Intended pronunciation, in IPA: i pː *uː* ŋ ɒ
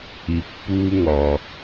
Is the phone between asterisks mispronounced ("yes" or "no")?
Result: no